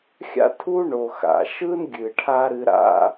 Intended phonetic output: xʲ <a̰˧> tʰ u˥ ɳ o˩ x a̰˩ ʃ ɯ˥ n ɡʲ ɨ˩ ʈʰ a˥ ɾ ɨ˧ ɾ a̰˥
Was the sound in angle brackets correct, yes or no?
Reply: no